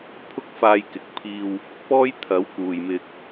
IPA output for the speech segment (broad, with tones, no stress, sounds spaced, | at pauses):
pʰ ʊ˥ k̚ f aː˧ j k ɪ˨˥ k̚ pʰ iː˧ w | p ɔː˥ j t̪ʰ ɐ˨˥ w k uː˨ j m ɪ˧ k̚